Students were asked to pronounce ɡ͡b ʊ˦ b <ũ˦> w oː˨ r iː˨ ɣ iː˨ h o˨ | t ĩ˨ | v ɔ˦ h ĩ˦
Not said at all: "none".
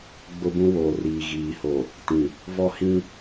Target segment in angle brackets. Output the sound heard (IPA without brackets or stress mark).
ũ˦